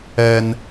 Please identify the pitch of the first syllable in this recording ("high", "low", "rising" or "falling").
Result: low